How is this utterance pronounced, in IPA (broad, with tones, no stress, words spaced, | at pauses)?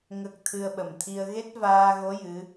ŋə˦˥k̚ t̪ʰɨ˧ə̯ɓə˨˩mt̪ʰi˧ə̯ ɣe˦˥t̚vaː˧ɣo˧˥ jɨ˧˥